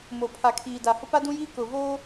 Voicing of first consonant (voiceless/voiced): voiced